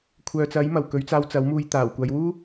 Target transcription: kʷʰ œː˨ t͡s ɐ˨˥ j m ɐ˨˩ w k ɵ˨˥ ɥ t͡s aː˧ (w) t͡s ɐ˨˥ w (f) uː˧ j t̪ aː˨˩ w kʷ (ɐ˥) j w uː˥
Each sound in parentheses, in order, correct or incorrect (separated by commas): correct, incorrect, incorrect